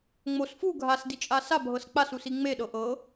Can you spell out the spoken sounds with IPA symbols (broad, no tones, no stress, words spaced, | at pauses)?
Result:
ŋ͡mos fu ɡʱasdit͡ʃʼa sabʱɤs k͡pasusi ŋ͡meɗɤ ʔɤ